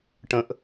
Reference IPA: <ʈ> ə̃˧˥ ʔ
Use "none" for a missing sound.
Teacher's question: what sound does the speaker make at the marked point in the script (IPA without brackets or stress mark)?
ʈ